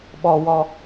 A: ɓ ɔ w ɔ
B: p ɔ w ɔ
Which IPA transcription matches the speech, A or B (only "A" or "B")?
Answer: A